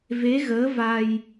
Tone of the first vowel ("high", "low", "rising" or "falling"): rising